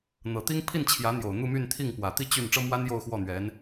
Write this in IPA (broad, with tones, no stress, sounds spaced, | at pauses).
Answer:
n̪ ɤ˨˩ t̪ i˥ ŋ pʰ i˥˩ n t͡ɕʰ j ä˧˥ n̪ j o˨˩ ʊ̯ n̪ u˥˧ m y˥˧ n t̪ʰ i˥˩ ŋ p w ä˨˩ t̪ i˥ t͡ɕ y˥˩ n ʈ͡ʂ ɤ˥ m w a˥ n j o˥˧ ʊ̯ x w ɔ˥˩ n̪ ɥ ɛ˧˥ n